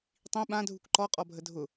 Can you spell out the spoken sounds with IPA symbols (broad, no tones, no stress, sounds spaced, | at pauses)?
tˤ ĩ ɓ ã dʱ u k ǃ ɔ qʼ ɔ bʱ ə dʱ ʊ